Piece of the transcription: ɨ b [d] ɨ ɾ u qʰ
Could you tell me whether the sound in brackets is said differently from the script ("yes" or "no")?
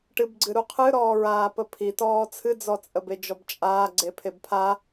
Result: yes